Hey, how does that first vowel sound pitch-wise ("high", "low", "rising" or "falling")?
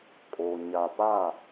low